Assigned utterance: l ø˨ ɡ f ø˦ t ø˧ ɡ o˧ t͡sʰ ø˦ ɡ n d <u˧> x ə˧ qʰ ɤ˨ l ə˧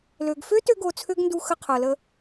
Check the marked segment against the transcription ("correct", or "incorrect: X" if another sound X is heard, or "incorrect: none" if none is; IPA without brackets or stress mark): correct